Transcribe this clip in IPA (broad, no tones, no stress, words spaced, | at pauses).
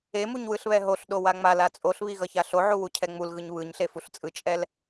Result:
emuɲ wɯɬβɛɦoɬɗo waŋ͡mala t͡sʼoɬβi ɣʌçaɬoʕu wucʰɛŋ͡mulɣɯɲ βɯɲɬe fuɬt͡sʼɯt͡ʃʼɛl